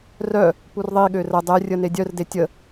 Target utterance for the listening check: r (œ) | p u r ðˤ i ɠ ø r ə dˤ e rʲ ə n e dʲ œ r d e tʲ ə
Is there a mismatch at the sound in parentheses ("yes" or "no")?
no